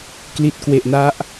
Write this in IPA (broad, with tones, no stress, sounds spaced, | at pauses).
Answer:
k l i˨˩ t̚ k w e˨˩ ʔ n a˦˥ ʔ